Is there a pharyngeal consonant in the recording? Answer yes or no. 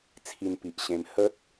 no